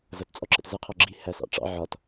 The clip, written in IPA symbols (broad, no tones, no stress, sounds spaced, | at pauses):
z ʌ t t͡sʼ ɔ ǁ ə̰ t z ə qʰ ɔ ɡ͡ǁ i h æ s ɑ̰ ʈ͡ʂ ɑ̰ ʕ ɒ t